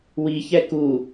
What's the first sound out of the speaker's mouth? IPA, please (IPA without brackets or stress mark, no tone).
w